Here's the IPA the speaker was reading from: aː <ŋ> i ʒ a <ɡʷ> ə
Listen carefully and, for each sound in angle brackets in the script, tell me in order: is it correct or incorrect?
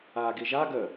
incorrect: ɡ, incorrect: ɡ

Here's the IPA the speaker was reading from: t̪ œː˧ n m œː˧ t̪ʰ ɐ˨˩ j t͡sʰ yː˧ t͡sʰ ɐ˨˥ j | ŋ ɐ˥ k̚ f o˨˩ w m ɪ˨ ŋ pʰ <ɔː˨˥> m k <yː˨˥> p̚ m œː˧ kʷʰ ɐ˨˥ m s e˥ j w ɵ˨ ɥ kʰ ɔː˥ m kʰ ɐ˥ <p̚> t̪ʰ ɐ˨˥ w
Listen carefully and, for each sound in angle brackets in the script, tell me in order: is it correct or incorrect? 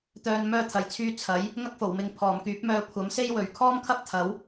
incorrect: ɔː˨˩, correct, correct

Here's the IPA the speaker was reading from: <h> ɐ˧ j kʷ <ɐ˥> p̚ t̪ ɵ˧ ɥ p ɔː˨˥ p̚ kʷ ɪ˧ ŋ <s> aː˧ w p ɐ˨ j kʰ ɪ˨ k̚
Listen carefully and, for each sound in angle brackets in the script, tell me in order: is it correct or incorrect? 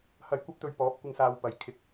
correct, correct, correct

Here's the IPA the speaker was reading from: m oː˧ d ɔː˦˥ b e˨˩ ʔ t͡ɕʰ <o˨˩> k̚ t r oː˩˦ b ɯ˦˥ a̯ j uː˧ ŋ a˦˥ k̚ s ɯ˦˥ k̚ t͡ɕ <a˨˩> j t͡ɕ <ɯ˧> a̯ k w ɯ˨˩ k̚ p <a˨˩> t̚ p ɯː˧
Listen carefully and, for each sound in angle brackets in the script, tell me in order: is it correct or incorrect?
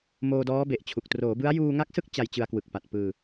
incorrect: u˨˩, incorrect: a˧, correct, correct

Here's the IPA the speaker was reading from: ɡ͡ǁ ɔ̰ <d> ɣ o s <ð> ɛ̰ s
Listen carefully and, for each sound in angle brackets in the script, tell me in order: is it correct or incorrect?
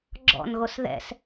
incorrect: n, correct

